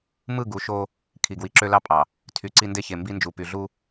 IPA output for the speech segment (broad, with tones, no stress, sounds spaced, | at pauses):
m ɯ˦˨ ɡ u˨˦ ʃ o˦ | kʰ i˨ ɡ w i˨ ǁ ø˦ l ɑ˦ pʼ ɑ˨ | tʰ y˨ ǀ i˦ n d e˦ ç e˨ m b i˦ n d͡ʒ u˨ p y˨ ɮ u˦